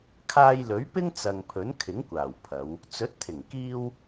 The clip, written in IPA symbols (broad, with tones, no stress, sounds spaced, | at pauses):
kʰ aː˧ j l ɵ˨˥ ɥ p ɪ˥ ŋ t͡s ɐ˨ ŋ pʰ ɵ˨˥ n kʰ ɪ˨˥ ŋ kʷ aː˨˩ w pʰ ɐ˨˧ w | t͡s ɵ˨˥ t̚ t̪ʰ ɪ˨˩ ŋ k iː˧ w